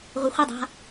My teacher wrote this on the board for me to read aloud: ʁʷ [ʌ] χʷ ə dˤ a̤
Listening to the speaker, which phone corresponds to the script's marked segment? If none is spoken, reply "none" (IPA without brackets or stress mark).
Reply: ə